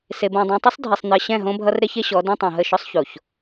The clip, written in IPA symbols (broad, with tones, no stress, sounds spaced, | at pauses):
s e˨ b õ˨ dˤ ɛ̃˨ tˤ ʌ˦ sˤ dʱ e˨ sˤ n̪ ɜ˨ ɕ ɛ̃˦˨ ɦ õ˦ bʱ ʌ˦ r ɾ e˦ ç e˦ ɕ ɔ˨˦ d ẽ˦ tˤ õ˨ ɦ ə˦˨ ʃ ɔ˦ sˤ ç o˨ ç